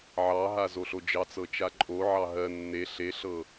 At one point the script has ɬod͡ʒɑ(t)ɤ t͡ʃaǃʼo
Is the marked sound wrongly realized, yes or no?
yes